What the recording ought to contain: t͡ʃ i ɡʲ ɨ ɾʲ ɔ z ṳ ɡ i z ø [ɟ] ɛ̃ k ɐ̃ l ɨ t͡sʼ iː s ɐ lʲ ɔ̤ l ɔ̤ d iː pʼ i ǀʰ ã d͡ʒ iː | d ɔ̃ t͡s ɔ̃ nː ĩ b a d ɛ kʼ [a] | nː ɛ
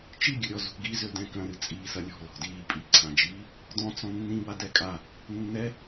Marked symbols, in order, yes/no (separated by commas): no, yes